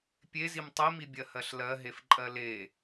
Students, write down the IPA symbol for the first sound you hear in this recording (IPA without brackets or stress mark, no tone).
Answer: pʲ